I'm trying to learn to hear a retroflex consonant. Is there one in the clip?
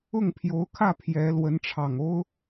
yes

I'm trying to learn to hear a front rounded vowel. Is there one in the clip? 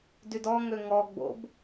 yes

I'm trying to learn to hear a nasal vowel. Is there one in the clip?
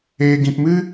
yes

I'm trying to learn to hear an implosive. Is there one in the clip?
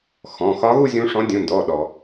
yes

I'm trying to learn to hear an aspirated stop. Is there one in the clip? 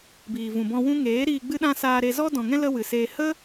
no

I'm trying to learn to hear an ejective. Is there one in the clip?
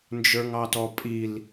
yes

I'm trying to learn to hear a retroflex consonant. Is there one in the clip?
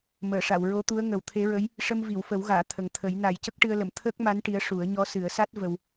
yes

